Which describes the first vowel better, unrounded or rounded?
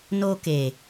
rounded